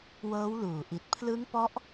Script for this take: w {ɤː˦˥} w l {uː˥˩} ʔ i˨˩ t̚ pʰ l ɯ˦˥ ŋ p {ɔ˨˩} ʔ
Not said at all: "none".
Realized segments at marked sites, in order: ɤː˦˥, uː˨˩, ɔ˦˥

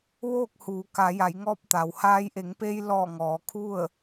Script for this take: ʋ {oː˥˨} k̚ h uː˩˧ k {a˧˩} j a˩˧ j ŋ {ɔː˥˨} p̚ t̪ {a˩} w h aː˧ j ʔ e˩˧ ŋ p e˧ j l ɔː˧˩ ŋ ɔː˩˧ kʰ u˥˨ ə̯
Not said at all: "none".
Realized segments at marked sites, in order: oː˥˨, a˩˧, ɔː˧, a˩

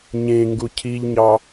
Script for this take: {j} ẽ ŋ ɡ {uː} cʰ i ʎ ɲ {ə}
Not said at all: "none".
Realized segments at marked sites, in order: ɲ, u, ɑ

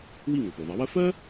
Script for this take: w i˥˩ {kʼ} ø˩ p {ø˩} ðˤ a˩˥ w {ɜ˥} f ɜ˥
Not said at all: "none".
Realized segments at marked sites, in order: ŋ, ø˩, ɜ˥

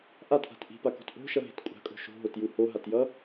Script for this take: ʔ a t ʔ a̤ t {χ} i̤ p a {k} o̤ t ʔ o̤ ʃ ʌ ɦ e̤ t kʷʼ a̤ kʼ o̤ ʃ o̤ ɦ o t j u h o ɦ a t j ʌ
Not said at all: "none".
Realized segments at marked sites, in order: ʔ, k

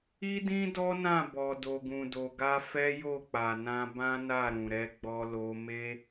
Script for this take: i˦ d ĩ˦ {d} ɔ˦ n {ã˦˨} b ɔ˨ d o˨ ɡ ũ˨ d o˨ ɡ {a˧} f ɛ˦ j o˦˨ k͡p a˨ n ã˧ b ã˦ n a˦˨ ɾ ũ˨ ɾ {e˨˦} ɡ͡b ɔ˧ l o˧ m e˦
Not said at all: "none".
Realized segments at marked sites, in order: d, ã˦˨, a˧, ɛ˨˦

